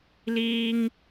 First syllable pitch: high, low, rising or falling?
high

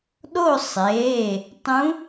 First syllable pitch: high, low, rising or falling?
falling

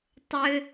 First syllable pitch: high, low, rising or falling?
high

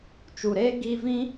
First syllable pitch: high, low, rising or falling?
low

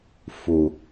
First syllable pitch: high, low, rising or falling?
low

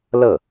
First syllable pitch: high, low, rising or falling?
falling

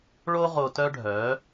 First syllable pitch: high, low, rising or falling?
high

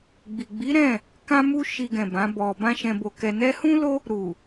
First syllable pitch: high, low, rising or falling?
low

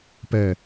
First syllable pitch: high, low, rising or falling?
low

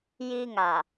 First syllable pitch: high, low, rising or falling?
high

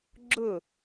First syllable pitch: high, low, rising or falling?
falling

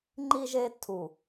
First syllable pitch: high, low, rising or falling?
high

